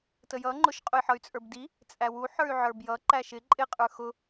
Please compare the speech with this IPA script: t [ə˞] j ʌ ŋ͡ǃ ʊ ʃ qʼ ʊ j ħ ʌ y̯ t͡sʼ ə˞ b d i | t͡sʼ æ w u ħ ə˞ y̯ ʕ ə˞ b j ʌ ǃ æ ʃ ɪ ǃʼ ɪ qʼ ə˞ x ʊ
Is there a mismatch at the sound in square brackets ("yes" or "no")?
yes